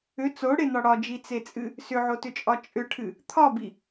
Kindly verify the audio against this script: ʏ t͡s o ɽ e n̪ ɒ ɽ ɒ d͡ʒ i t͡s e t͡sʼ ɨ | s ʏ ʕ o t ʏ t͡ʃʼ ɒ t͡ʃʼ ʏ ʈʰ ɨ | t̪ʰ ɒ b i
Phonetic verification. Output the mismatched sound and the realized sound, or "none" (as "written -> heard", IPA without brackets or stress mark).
none